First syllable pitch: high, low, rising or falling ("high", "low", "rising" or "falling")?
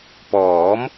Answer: rising